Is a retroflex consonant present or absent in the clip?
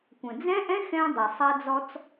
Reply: absent